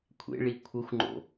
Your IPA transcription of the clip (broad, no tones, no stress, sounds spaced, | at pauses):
kʷʰ ḛ ɭ i kʷʰ ə xʷ ŋ͡ǃ o̰